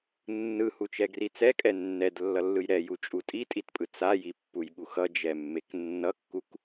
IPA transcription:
nːɯhut͡ʃɛɡri t͡sɛkʼɛ nːɛdlːʌlːɯj ɾɛjut͡ʃʼu tʼitʼitpʼɯ t͡sajipːujɠux ʌd͡ʒɛmːek nːʌkːuk

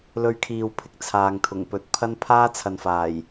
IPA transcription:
lɵ˧ɥkʰiː˨wpʰɪ˨k̚ t͡sʰaː˨ŋt̪ʰʊ˨˩ŋpɵ˧t̚ pʰɐ˥n pʰaː˥t͡sʰɐ˨nfaː˨˩j

